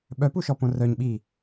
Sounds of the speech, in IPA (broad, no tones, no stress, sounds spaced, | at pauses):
ɓ œ p u ʃ ɔ p õ r œ ɲ ɓ i